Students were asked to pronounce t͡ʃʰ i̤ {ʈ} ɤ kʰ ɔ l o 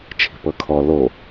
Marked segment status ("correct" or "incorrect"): incorrect